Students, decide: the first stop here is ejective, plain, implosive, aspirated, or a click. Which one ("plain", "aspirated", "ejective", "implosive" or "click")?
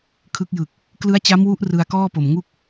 aspirated